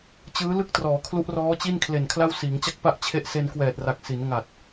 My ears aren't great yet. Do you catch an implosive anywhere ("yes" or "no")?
no